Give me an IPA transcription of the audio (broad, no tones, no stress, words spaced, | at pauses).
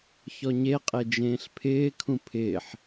çɔɲeqʼe d͡ʒẽːɬpʰɪːkʰũ pʰɪːħ